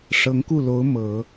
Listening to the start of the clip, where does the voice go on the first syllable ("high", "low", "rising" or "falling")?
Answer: rising